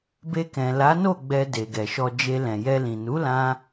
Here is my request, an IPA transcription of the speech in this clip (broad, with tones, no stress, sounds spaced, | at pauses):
b e˧ k ɛ̃˨ l a˨˦ n o˦˨ ɡ͡b ɛ˧ d e˨ ɡ ɛ˨ ʃ ɔ˧ d͡ʒ e˧ l ɛ̃˨ j ɛ˧ l ĩ˨ n u˨˦ l ã˧